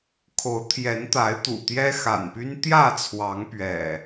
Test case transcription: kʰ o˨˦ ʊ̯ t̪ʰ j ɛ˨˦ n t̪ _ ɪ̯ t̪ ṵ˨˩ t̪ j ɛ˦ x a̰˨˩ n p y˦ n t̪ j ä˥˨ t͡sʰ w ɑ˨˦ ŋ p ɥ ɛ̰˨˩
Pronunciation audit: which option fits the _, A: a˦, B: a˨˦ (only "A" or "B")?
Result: B